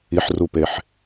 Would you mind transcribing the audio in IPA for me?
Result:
i ħ r u p e ħ

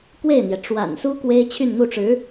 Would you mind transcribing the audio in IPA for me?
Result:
k w e˥˩ ɪ̯ n̪ j ɛ˩ ʈ͡ʂ w a̰˨˩ n s u˥ k w e˥ ɪ̯ t͡ɕʰ y˥˧ n n̪ u˥˩ ʈ͡ʂ ɻ̩˧˥

